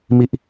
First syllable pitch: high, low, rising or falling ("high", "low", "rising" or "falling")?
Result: falling